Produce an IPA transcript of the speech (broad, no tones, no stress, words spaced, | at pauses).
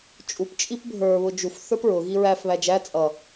t͡ʃʼup t͡ʃʼipbʱə˞ βʊd͡ʒuf θə˞pɹʊ ɣiɹæf βæd͡ʒæ t͡sʼʌ